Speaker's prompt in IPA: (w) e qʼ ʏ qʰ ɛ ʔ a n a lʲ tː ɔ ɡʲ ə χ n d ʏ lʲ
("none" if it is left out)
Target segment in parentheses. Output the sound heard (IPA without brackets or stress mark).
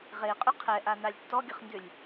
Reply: ʁ